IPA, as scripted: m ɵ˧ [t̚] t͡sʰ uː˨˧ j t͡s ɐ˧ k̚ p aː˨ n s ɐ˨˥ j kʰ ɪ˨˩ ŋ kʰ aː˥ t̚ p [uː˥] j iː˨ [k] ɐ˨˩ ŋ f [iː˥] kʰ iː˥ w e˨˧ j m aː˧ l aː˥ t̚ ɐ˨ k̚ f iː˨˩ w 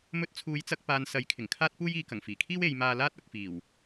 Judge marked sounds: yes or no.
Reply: yes, yes, yes, no

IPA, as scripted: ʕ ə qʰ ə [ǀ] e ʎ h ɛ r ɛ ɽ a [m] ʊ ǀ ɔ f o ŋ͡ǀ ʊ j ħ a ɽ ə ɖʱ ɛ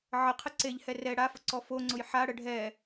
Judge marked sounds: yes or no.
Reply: yes, no

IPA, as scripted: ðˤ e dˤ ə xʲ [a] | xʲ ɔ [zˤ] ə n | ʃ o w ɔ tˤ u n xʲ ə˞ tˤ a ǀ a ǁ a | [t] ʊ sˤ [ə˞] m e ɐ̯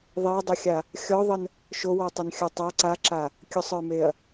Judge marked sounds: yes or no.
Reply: yes, no, no, yes

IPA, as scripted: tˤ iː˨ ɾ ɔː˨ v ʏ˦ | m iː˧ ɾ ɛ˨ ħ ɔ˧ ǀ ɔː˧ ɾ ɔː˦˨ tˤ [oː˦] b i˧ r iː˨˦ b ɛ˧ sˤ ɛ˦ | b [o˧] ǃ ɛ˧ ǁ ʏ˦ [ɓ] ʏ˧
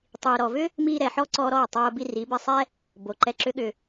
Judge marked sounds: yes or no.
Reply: yes, no, no

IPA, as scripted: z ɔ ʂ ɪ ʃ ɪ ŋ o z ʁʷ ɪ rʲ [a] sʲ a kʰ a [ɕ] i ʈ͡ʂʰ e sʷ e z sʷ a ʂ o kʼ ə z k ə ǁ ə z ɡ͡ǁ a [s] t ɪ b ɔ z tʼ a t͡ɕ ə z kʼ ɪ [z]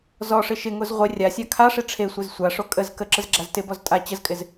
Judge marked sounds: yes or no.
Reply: yes, no, no, yes

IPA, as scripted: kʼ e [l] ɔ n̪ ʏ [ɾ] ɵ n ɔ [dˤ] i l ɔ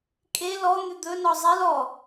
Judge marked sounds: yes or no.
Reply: yes, no, no

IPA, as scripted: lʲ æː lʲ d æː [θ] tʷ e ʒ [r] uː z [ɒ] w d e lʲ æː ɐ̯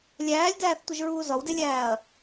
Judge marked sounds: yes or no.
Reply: yes, no, yes

